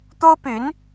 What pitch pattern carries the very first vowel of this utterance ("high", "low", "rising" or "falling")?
high